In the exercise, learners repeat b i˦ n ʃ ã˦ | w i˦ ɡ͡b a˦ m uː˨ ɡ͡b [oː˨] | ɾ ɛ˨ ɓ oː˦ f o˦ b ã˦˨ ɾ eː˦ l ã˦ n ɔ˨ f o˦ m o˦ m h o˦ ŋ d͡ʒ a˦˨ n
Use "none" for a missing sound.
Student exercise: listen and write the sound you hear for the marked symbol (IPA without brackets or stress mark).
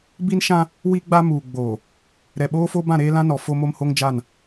oː˨